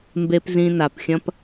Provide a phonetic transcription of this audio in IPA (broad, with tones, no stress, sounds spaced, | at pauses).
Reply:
m b e˧ p z ĩ˧ n a˨ p xʲ ɐ̃˦ p